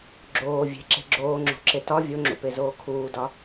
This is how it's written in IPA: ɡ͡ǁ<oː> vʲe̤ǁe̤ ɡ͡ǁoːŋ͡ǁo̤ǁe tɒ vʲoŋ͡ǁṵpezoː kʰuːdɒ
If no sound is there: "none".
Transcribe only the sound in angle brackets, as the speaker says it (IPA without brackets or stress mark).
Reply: oː